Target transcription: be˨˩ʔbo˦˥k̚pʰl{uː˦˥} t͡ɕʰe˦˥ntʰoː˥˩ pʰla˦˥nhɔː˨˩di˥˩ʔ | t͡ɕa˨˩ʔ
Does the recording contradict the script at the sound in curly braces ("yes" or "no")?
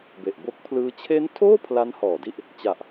yes